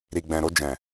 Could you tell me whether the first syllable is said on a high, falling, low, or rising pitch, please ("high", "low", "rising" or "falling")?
low